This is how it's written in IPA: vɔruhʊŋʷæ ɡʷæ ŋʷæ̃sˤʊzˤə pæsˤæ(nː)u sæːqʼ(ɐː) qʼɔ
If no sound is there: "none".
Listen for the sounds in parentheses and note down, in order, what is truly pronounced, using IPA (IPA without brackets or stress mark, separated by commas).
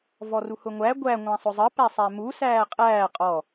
m, æː